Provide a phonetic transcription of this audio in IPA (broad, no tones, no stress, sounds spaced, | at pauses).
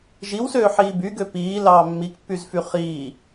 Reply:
ʒ i w s øː ħ iː b y ɡ ø p iː l ɑː mː i k pː y z f y χ iː